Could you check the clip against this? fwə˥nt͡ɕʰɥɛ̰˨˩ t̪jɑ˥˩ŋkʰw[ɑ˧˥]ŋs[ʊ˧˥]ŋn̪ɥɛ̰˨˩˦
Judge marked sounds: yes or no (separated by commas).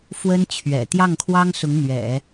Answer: no, yes